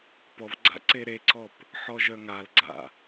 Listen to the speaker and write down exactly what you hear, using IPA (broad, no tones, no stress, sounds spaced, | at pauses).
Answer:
p ɔ v ɡ͡ǀ a̰ ǀ e ɾ e ǀ ɔ p | ħ ɔ ʒ œ ŋ a l ɡ͡ǀ a̰